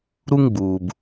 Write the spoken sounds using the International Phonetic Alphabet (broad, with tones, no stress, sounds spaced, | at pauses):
ɾ u˦ ŋ ɡ͡b uː˨ b